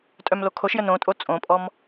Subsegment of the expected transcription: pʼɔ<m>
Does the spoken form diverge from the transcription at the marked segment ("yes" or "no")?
no